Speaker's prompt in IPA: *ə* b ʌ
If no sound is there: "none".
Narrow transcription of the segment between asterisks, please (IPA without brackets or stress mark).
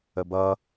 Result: ə